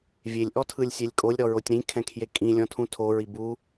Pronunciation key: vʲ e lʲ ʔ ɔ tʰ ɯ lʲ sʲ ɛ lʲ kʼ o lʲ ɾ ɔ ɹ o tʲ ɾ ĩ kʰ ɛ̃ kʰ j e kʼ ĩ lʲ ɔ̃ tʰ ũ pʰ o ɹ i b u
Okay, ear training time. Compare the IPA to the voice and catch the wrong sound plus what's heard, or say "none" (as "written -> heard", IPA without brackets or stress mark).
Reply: pʰ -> tʰ